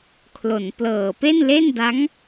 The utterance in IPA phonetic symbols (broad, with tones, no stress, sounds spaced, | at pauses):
kʰ l o˩˦ n p l ɤː˨˩ p e˥˩ n l e˥˩ n d a˦˥ ŋ